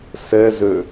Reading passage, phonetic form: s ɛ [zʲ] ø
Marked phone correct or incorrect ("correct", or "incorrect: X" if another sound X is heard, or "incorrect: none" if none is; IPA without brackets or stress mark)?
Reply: incorrect: z